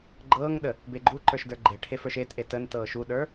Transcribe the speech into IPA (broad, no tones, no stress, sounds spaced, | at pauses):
ɡ͡ǃ ɤː ŋ ɗ ə | b e ɡ͡ǃ u ǃ ə˞ ʃ d ə˞ ɡ͡ǃ e ʈʰ e f ə˞ ʃ e t ʔ e t ə n t ɤː ʃ u ɗ ə˞